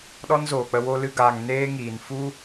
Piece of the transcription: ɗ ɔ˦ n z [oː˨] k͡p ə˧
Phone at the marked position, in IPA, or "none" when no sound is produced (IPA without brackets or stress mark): oː˨